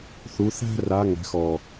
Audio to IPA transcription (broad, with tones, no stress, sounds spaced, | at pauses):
θ u˨˦ θ æ̤˥ r a˨˦ ŋ æ̤˨˦ x ɔ˨˩